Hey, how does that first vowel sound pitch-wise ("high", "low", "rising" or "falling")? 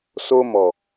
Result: high